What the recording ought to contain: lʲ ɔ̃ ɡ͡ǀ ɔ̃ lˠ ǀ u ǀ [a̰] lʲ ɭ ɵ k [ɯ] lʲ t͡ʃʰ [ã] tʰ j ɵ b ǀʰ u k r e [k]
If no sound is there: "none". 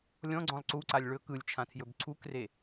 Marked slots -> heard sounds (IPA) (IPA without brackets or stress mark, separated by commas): a, ɯ, ã, none